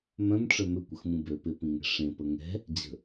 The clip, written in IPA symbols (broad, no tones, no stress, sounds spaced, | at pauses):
m œ̃ m ʈ͡ʂ œ m ʏ kʷ ə x m ũ b ø p ɪ p ĩ ŋ ɛ̤ ʂ ẽ p ə ŋ ɛ̤ | d͡ʑ ə̤